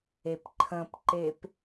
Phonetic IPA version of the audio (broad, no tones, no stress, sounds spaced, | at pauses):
e p ǃʰ ə̃ p ǃ e p